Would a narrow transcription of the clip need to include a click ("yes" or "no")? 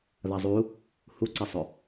yes